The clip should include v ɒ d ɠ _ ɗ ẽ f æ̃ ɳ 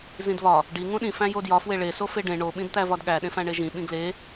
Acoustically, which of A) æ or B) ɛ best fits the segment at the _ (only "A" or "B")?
A